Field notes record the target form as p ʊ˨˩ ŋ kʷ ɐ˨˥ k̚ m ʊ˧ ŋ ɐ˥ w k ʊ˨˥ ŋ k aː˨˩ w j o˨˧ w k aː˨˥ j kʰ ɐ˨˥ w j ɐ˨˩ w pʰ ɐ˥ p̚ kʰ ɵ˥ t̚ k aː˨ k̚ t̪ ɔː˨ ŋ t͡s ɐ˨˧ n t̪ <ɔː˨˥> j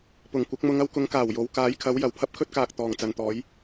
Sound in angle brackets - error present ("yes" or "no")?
no